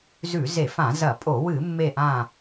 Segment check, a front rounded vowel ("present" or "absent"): absent